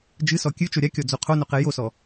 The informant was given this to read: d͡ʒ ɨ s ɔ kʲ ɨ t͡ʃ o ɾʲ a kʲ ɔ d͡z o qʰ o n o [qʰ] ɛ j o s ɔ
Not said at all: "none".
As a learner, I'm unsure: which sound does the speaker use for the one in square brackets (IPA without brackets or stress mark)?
q